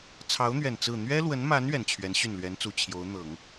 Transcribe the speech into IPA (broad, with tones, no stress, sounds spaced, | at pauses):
t͡sʰ ɑ˧˥ ʊ̯ n̪ ɥ ɛ˨˩ n t͡s ɹ̩˥˩ n̪ ɥ ɛ˥ l w ə˧˥ n m a˧˥ n ɥ ɛ˨˩ n t͡ɕʰ ɥ ɛ˧˥ n ɕ y˥˩ n l ɥ ɛ˧˥ n t͡s u˨˩ t͡ɕʰ j o˧˥ ʊ̯ n̪ ɤ˨˩˦ ŋ